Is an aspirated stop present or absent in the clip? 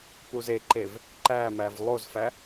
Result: absent